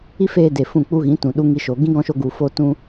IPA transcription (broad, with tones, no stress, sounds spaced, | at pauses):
i˦ f eː˧ d e˨ f ũ˦˨ k͡p u˦ ɣ ĩ˨˦ t ũ˨ ɗ u˧ ŋ i˧ ʃ o˨ ɡ ĩ˦ ɡ ɔ̃˧ ʃ o˧ ɡ u˨ f o˧ t ũ˧